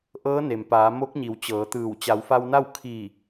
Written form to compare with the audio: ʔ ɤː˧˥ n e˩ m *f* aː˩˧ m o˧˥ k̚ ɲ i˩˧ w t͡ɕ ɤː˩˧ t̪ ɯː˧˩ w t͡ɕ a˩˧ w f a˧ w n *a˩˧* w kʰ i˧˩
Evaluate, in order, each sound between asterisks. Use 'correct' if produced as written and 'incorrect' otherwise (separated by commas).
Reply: incorrect, incorrect